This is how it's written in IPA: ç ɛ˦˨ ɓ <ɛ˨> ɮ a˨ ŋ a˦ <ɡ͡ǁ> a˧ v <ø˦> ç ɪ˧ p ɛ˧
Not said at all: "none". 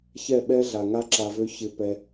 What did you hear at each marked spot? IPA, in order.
ɛ˦, ǁ, ø˦

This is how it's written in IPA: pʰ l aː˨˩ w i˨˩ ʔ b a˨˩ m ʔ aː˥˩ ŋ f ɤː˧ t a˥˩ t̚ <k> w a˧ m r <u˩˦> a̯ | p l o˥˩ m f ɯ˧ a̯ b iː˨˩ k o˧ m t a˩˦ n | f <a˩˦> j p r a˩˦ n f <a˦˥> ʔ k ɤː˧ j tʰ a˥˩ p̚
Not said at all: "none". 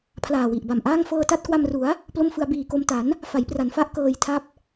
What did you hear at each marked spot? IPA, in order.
k, u˩˦, a˩˦, a˦˥

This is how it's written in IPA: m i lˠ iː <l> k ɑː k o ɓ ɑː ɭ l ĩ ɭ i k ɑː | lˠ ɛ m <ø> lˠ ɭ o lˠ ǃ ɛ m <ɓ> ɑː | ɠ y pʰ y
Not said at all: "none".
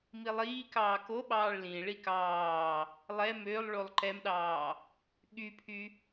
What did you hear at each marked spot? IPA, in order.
none, ø, ɗ

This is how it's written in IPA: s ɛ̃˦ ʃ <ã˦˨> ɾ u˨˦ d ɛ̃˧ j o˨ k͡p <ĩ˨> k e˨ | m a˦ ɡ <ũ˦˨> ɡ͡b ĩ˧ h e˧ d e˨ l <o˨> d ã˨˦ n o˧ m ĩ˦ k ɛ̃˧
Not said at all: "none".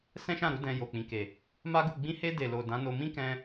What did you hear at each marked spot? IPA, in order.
ã˦˨, ĩ˨, u˦˨, o˨

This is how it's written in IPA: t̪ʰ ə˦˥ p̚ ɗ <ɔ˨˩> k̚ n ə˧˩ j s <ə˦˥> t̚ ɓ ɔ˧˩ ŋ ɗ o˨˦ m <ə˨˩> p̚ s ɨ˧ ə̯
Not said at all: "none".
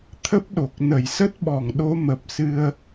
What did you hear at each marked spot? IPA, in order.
o˨˩, ə˦˥, ə˨˩

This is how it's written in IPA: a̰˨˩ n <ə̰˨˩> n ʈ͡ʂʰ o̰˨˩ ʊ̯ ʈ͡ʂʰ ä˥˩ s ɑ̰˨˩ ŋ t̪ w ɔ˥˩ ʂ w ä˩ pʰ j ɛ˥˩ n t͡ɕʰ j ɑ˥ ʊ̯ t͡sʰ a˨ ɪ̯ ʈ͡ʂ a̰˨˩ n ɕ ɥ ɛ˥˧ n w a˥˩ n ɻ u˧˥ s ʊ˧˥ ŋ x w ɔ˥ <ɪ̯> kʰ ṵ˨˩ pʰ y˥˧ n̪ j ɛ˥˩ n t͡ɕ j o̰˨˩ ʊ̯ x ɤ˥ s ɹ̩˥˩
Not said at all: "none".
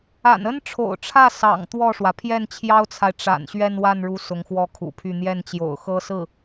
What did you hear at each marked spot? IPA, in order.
ə˥, none

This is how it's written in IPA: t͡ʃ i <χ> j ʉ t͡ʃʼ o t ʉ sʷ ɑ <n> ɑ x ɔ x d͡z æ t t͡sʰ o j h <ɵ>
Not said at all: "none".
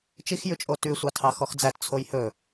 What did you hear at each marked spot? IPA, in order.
x, tʰ, ɵ

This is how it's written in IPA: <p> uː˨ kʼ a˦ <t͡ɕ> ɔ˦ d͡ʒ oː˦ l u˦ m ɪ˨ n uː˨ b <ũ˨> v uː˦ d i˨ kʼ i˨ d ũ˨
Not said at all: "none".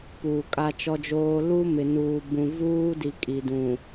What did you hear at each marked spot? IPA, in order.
p, t͡ʃ, ũ˨

